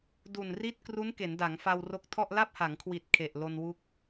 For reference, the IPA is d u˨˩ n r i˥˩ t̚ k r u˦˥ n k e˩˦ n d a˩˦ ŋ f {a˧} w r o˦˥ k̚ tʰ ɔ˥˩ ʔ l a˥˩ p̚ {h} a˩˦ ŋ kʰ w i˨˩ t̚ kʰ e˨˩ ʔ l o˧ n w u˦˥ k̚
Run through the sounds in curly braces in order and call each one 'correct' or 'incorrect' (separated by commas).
correct, correct